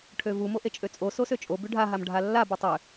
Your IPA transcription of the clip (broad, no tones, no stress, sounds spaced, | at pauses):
ʈʰ ø v u m o ʔ e t͡ʃʼ ø t͡sʼ o s o s ø t͡ʃʼ o b ʉ ɖʱ a ɦ a m ɖʱ a lː a b ɯ tˤ ø